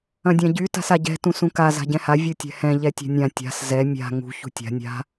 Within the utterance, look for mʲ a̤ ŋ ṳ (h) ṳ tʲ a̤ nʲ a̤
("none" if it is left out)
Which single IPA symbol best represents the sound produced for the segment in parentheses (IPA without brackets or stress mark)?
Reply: ç